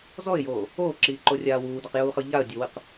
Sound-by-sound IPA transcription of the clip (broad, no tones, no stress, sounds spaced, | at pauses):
z ɔ ɪ̯ j oː | oː ǁ iː ǃ o rʲ aː w uː d a q j uː χ ɤ ʎ a ə̯ dʲ o w ɯ q